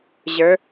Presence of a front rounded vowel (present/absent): absent